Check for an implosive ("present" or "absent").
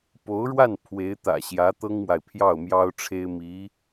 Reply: absent